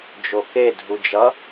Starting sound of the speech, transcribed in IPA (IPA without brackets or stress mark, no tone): d͡ʒ